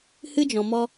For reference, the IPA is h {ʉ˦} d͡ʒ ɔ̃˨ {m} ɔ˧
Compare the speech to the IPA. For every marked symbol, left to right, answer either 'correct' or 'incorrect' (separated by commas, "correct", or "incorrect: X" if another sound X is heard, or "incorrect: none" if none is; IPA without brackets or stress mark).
incorrect: ɨ˦, correct